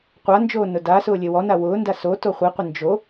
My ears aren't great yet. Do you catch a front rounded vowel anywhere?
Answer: no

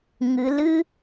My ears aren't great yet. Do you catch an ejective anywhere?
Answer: no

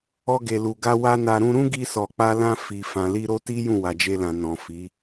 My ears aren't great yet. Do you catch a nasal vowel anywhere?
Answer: yes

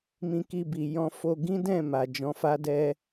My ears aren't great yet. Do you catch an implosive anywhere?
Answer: no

